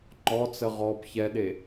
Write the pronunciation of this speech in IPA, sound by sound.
ŋ͡ǃ ɔ t͡s ə ʁ ɔ b ç ɛ ɗ e

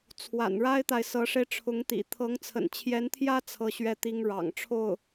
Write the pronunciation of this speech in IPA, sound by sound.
t͡sʰ w a̰˨˩ n ɻ a˥ ɪ̯ t̪ a˨ ɪ̯ s ɤ˧˥ ʂ e˧ ɪ̯ ʈ͡ʂʰ ʊ˧˥ ŋ t̪ ḭ˨˩ t̪ʰ ɤ˧˥ ŋ t͡sʰ ə̰˨˩ n t͡ɕʰ j ɛ˧˥ n t̪ʰ j ä˥ t͡sʰ ɤ˥˩ ɕ ɥ ɛ˥ t̪ i˥ ŋ ɻ ɑ̰˨˩ ŋ ʈ͡ʂʰ o˥˩ ʊ̯

